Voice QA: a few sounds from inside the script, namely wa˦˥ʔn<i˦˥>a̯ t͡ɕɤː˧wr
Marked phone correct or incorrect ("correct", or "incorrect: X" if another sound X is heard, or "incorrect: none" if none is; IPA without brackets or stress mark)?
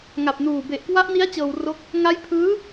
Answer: correct